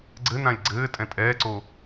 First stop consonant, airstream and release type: click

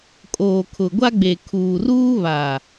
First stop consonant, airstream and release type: ejective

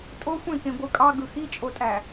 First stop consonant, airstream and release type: ejective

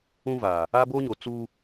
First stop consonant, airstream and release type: plain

